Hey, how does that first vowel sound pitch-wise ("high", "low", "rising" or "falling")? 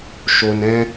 low